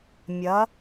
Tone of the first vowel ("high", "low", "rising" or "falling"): rising